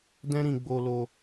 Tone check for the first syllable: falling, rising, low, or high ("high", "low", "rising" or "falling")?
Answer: high